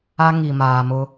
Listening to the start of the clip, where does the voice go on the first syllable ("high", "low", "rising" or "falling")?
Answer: high